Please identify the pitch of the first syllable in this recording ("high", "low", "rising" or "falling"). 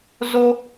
high